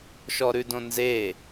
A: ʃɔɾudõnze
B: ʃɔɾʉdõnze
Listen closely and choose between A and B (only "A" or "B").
B